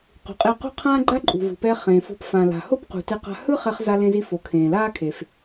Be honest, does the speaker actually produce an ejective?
yes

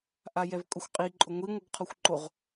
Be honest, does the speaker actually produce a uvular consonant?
yes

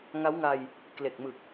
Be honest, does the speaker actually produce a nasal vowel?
no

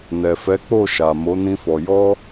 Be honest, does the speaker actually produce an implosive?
no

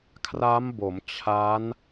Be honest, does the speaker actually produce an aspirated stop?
yes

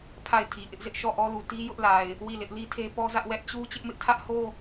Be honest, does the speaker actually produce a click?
no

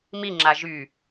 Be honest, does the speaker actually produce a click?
yes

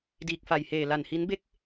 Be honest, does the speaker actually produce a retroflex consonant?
no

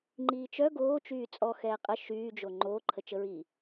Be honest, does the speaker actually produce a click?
yes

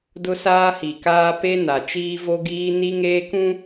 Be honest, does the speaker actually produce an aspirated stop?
no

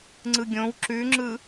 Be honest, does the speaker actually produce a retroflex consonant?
no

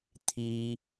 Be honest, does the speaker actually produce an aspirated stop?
yes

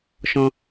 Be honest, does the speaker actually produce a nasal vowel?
yes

